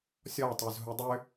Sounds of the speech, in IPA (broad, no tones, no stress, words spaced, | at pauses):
sʲɔtˤœz ɦudˤʏ